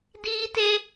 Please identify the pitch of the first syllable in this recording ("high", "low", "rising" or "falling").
high